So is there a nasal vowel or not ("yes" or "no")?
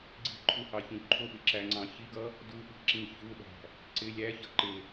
yes